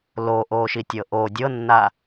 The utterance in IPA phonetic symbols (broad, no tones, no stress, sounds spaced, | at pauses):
l o ʔ oː ʃ i tʲ ɤ ʔ o dʲ ɤ nː a